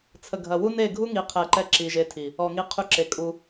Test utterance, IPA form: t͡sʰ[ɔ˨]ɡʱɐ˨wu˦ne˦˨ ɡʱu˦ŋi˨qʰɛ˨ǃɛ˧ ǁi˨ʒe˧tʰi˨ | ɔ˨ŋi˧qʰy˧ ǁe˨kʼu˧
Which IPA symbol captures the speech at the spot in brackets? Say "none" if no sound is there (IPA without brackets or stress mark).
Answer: ə˨